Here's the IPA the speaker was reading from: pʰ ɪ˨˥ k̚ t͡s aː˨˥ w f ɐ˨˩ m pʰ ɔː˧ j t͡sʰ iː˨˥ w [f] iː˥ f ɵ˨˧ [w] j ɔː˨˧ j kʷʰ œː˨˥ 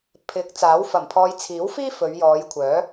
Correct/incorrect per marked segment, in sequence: correct, incorrect

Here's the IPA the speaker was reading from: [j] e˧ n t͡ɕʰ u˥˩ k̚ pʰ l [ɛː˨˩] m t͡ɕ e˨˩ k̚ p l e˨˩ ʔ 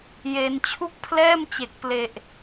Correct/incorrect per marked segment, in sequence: correct, incorrect

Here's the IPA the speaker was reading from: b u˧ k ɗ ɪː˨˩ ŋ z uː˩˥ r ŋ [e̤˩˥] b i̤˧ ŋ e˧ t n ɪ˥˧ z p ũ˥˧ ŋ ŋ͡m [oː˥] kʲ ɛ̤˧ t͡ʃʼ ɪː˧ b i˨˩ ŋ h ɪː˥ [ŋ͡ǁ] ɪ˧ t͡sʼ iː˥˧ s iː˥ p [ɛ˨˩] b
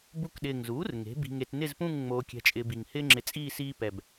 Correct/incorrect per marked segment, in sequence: correct, incorrect, correct, correct

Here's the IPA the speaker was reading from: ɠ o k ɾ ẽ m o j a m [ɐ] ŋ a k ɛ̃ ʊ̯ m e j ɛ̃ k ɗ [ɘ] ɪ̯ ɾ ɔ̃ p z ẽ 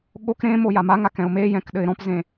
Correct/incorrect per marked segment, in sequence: incorrect, correct

